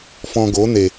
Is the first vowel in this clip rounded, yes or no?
yes